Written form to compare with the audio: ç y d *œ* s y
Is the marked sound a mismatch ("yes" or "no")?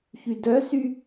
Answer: no